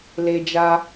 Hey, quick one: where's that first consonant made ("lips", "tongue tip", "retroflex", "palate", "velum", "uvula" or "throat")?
tongue tip